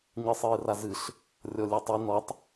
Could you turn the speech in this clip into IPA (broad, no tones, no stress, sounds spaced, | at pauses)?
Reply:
ɲ ɨ sˤ ɨː r a z ɨ ɬ | rʲ ɔ lʲ ɛ tˤ i n ɔ tˤ